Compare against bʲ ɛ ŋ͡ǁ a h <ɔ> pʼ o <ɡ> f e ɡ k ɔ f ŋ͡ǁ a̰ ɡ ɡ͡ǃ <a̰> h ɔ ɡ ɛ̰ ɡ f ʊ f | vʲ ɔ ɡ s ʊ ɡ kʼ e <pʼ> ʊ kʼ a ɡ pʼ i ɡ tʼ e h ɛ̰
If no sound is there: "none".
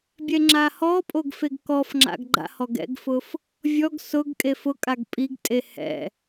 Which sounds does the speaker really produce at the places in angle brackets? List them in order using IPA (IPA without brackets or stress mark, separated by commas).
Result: ɔ, ɡ, a̰, f